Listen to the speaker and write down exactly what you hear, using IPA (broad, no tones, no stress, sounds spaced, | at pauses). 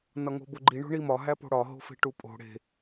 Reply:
n ɒ ŋ o̤ b o ɡ͡ǃ i ɳ o̤ ɳ i m ɒ ɦ æ p o̤ ɽ ɒ ɦ o̤ f e̤ ʈ u pʼ o̤ ɽ e̤